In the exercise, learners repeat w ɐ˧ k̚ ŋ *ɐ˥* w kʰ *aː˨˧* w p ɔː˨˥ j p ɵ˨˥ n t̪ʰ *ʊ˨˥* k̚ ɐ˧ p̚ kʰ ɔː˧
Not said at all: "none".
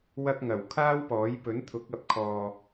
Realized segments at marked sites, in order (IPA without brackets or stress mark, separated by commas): ɐ˨˩, aː˥, ʊ˨˥